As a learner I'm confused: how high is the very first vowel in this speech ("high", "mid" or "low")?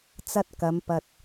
low